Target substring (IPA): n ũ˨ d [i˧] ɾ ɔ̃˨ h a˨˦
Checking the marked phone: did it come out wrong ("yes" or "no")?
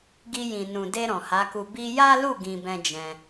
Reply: yes